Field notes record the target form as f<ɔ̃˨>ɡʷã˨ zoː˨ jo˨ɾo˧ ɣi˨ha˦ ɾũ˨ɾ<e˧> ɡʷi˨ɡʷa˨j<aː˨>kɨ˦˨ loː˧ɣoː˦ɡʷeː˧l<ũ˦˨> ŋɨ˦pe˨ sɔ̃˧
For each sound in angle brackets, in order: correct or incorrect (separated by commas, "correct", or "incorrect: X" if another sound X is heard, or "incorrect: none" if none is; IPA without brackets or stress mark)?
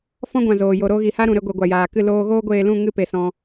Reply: incorrect: ɔ̃˦, correct, correct, correct